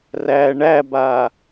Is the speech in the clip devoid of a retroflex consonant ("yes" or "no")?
no